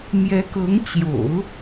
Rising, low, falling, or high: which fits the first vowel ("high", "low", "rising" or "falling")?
rising